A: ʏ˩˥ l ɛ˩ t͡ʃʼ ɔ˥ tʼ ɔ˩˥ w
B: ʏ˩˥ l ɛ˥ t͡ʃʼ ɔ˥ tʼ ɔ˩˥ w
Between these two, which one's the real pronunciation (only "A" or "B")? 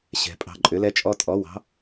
B